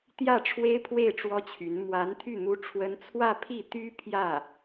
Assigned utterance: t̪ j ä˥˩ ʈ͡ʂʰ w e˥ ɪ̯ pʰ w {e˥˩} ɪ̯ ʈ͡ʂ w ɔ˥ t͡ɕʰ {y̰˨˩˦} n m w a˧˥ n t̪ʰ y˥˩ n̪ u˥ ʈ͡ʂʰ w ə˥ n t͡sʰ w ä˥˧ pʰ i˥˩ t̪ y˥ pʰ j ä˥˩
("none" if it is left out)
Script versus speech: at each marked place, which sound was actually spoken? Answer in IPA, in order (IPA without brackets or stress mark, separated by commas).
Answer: e˥˩, y˧˥